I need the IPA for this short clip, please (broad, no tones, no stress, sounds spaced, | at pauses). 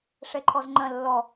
ʂ ɛ ǃʰ ɔ z ŋ͡ǃ ɐ̃ lː ɔ